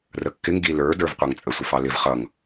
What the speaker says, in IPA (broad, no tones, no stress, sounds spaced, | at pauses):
r ə kː ɪ ŋ ɡ i l ə˞ d ə˞ v qʷ ɑ ŋ t͡sʼ ə sʷ ɪ f ɑ l ɪ v χ ʌ ŋ